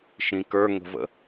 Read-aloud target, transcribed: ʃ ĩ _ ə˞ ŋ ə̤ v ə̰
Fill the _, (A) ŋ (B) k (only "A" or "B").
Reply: B